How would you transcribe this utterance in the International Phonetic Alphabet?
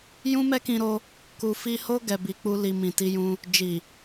jũ˦mɛ˦kĩ˧ɾo˧ | ku˧fi˦ ho˦ ɡɛ˧bi˧k͡pu˦li˧ mĩ˨ti˧jũ˧ | d͡ʒi˨

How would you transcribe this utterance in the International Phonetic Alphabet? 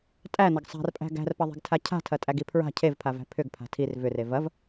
tʼænɐɡ sˤa̤rpʼæ̤ ɡæ̤rpɐðˤe̤ɡtʰa cʰa̤tʰɐtʼæɡi pʰɹa̤ cʰevpʰavæ̤ pʰʏɡpʰa̤ tʰir vʏre vɐv

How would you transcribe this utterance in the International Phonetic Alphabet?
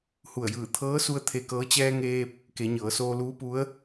hu˧˩ə̯jɯː˧˩ t̪ʰɤː˧˥su˧ə̯ t̪ʰe˧kɤː˧˥ t͡ɕɛː˧ŋeː˧p̚ | ke˩˧ɲɤː˩˧soː˧ luː˧˥pu˧˥ə̯

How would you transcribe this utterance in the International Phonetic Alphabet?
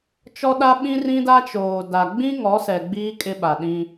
t͡ʃɔ˦ɗa˦ɓĩ˦ rĩ˦da˦t͡ʃoː˨da˨ ɡ͡bĩ˦ŋɔ˨˦sɛ˨ ɡ͡biː˦ kʼɪ˦ɓa˨ ɗĩ˦

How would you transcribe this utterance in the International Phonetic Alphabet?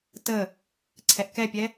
tə | ǀʰɛʔkɛpʲɛ

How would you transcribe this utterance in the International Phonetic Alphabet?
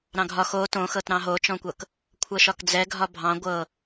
ɾɑ̃ɡʱɒ xo tõxɤtɾɑ̃ ɦot͡ʃɔ̃kʷɤk | kʷʰɤʃɒkd͡zɛ ɡʱɒbʱɑ̃ ɡʷɤ

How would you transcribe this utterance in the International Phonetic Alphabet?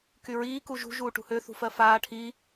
kyɹiː kuʒṳ ʒuːʈṳhø θṳfɜfaː ʈʰi

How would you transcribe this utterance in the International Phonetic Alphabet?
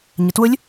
ɲətwʊlʲ

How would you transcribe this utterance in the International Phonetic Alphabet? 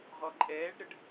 ʁɔǃʼɛːɖɾəɖ

